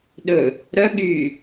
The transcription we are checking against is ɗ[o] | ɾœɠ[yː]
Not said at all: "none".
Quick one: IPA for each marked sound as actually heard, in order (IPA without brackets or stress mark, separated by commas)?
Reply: ɵ, yː